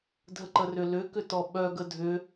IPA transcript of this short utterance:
dʱəǃərʏlʏ kʏtɔɓœ ɡədʱʏ

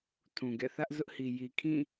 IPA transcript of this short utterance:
tʰũ˨ɡɛ̰˦˨ θä˦ʔzʊ˦ʔhi˨ ji˨kʰĩ˦˨

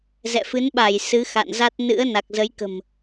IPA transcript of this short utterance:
zɛ̰˧˨fɨ˨˦nɓa˧˩j sɨ˨˦xa̰˧˨nza˦˥t̚ nɨ̰˧˥ə̯ na˨˩k̚zə˨˦jkə̤˨˩m

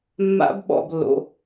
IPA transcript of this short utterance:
mːa̰˦˥bɓɔ̰˥˧blːo̰˧˥˧

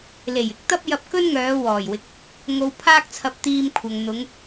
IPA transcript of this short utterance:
le˨˩jɪ˥k̚t̪ɐ˥p̚ jɐ˧p̚kɵ˥nŋœː˨˧ wɔː˨˩jwɪ˨k̚ | ŋo˨w pʰaː˥k̚t͡sʰɐ˧p̚t̪iː˧mkʷʰɐ˨ŋ n̪ʊ˨˧ŋ

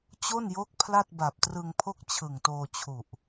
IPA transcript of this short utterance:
t͡ɕo˥˩njo˦˥k̚ pʰla˥˩t̚ba˨˩p̚trɯ˧ŋpʰo˥˩k̚ t͡ɕʰɯ˨˩ŋtoː˧t͡ɕʰu˨˩ʔ

